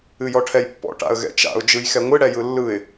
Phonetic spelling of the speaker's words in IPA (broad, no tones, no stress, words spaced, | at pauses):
ɨjɔʈʰɛjpːɔ̰ ʈa̰ə̯ɣɛ̰t͡ʃa̰ʊ̯ d͡ʒɯjxɛŋʷɨ ɽɛjɯlːɯɪ̯